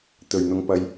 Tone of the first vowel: low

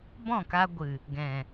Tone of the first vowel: falling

